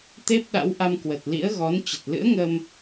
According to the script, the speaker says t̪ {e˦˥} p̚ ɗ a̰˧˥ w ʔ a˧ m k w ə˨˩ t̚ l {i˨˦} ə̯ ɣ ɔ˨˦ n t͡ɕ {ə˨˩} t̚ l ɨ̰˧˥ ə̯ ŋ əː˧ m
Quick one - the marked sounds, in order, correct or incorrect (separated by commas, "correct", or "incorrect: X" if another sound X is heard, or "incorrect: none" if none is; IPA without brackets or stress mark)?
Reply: correct, incorrect: ḭ˧˥, correct